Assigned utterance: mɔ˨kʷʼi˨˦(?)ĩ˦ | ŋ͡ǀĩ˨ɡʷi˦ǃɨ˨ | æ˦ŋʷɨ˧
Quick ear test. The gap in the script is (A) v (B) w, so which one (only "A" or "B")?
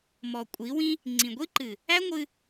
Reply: B